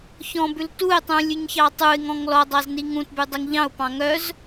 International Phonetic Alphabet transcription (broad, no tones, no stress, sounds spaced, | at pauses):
ç ɔ̃ b ʉ l t u ɪ̯ tˤ ũ lʲ ʉ ɲ ç ɑ tˤ u ɪ̯ ŋ ɔ̃ ŋ l ɔ dˤ ɑ z n i ŋ ũ t b ʉ dˤ i ŋ ʎ ɑ̃ ʊ̯ p ɑ̃ ŋ œ z